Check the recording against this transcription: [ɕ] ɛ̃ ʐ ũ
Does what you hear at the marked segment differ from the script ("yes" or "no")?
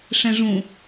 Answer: yes